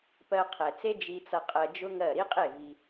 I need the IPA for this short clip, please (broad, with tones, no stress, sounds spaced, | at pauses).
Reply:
p ɜ˧ qʰ ɛ˨ t͡s e˦ d͡ʒ i˧ t͡s ʌ˧ qʼ ɜ˧ d͡ʒ ʊ˦ ŋ ɜ˦˨ ɾ i˦ qʼ e˦˨ v i˧